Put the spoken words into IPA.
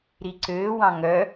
ɾ i ǀ øː w ɑ̃ ŋ œ

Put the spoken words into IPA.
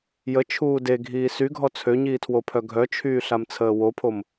j ə t͡ʃʰ uː d e ɡʱ iː s y ɡʱ ɔ t͡sʰ ø ɲ iː tʰ w o pʰ œ ɡʱ œ t͡ʃʰ yː ɬ a m t͡sʰ əː w o pʰ o m

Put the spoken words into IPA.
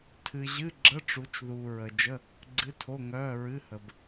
tʰ ɨ˨ ʑ ɨ˧˥˧ ɡ͡ǁ ə˧˥˧ ʈ͡ʂ u˨˦ t͡ʃ ð uː˨ ɹ ə˨ d͡ʒ ə˧˥˧ | ɡ͡ǀ ɨ˧˥˧ tʰ o˧˥˧ ŋ œː˧˥˧ ɹ ɨ˧˥˧ h ə˨ b

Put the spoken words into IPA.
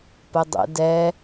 p ə dˤ ə̰ d ɛ

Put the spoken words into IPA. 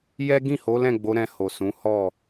j ɛ˦ ɡ ĩ˦˨ h o˨˦ l ɛ̃˦˨ ɡ͡b o˨˦ ɾ ɛ̃˧ h o˨ s ũ˨˦ h ɔ˦˨

